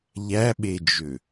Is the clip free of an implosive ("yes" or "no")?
no